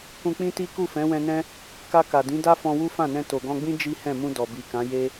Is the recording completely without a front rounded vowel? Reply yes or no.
yes